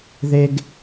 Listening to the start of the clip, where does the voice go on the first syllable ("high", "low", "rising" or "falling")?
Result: high